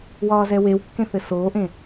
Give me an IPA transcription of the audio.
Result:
w ɒː z ɛ w e w kː ẽ θ ɘ s oː ʔ ẽ

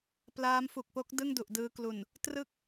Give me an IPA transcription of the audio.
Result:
p l aː˦˥ m f u˨˩ k̚ p o˦˥ k̚ d ɯ˥˩ ŋ d u˨˩ ʔ d ɯː˧ k l u˨˩ n | t r ɯ˥˩ k̚

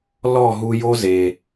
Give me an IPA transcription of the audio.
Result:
l ɔ˦˨ ɦ u˧ j o˦ z e˨

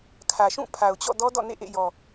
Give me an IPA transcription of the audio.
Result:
kʰ ä˨ ʃ ũ˦˨ pʰ a˨ ʊ̯ t͡ɕ ɔ̰˦˨ d ɔ˦ d ɔ̰˦˨ n ḛ˦˨ ʔ ḛ˦˨ j ɔ˨

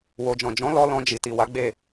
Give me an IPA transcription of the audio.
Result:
w o˨ d͡ʒ ɔ̃˨ d͡ʒ ɔ̃˨˦ l ɔ˧ l ɔ̃˧ d͡ʒ i˨ t i˨ w a˨˦ ɡ͡b e˦˨

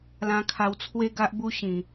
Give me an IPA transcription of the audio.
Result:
l ã˧ kʰ a˧ w t͡sʰ w e˦ ɡ a˦ ʔ b u˦ ɕ ĩ˨˩

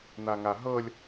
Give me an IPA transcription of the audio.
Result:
n̪ a ŋ a ɦ ɤ lʲ

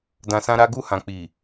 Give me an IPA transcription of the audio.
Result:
d ã˧ s ã˦ ɾ a˦ ɡ u˦˨ h ã˨ k͡p i˨

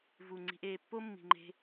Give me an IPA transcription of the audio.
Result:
v u˨ ŋ͡ǀ i̤˧ ʔ eː˧ pː o˦ mː i̤˨ ŋ͡ǃ e̤˧

